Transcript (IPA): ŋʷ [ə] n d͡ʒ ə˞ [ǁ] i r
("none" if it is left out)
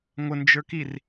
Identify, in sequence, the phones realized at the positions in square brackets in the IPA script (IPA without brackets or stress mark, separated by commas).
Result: ə, k